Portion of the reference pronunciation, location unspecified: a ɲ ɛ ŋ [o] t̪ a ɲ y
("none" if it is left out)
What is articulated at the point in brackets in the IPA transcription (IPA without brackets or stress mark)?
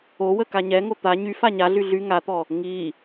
o